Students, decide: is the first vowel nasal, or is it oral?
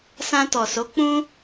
nasal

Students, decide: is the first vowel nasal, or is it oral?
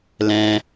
nasal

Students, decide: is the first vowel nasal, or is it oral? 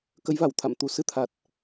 oral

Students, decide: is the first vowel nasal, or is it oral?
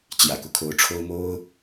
oral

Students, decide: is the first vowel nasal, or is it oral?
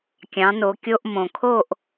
nasal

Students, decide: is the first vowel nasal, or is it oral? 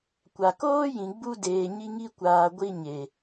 oral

